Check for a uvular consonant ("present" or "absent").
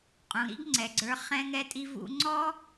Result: present